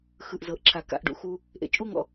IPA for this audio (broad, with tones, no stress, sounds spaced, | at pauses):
x ɯ˨ ʔ z ɤ˨ ʔ ǁʰ a˨ k a̰˦˨ ʔ ɖ ṵ˧ x u˦ | ʔ ḛ˨ t͡ʃʼ u˦ ŋ ɔ̰˧